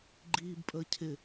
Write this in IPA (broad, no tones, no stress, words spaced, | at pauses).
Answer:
ɡ͡ǃiːbpʼəː cʰɪ